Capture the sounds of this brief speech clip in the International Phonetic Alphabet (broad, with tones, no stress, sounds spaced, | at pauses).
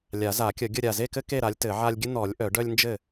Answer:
lʲ a˨˩˦ z a˨˩˦ kʲ ə˨˩˦ ɡʲ ə˥˨ ɾʲ a˧˩ z e˥˨ k ɘ˦ k e˥˨ ɾ a˨˥ lʲ t ɘ˨˩˦ ʕ a˦ lʲ ɡʲ ɘ˦ n̪ ɔ˨˩˦ lʲ ʔ œ˨˩˦ ɖ œ˦ lʲ n d͡ʒ ɘ˥˨